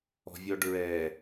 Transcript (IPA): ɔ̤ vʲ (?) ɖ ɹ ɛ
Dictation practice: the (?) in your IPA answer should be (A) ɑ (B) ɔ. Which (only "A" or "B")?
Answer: B